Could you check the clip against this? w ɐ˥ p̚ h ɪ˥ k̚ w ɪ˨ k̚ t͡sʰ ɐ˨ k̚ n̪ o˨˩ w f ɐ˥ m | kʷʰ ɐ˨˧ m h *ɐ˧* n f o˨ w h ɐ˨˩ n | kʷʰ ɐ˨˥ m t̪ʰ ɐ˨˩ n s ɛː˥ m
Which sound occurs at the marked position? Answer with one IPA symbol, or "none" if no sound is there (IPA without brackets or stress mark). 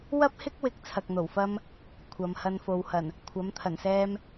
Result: ɐ˧